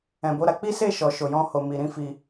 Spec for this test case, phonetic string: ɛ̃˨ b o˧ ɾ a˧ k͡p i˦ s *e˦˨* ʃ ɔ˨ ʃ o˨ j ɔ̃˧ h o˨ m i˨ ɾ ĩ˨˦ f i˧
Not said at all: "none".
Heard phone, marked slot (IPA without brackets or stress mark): e˦˨